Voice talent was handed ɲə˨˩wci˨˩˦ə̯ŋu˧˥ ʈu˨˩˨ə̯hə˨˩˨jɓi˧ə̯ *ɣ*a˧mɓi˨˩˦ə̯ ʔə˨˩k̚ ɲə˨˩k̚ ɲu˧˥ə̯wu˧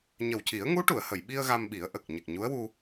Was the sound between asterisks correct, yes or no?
yes